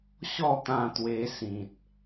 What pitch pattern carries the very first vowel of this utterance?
falling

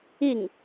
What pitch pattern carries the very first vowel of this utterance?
falling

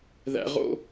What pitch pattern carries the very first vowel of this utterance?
low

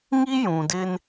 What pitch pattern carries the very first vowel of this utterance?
high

